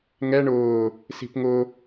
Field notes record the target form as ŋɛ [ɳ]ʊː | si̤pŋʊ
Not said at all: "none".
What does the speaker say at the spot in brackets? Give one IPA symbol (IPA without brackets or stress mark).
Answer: ɳ